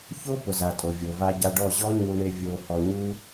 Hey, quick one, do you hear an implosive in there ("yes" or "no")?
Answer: no